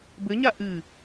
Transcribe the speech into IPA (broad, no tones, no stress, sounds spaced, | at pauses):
b ɘ ɲ a ʔ ɨ